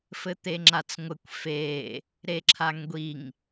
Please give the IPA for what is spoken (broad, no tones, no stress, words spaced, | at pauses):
fɘt̪eŋ͡ǁat͡sŋʷɘkʷ fe | ɾeǁʰaŋɡʷiŋ